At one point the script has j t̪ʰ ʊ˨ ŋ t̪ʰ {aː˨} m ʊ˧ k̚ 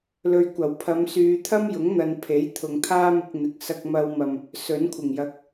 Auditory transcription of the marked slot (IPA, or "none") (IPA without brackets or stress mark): aː˥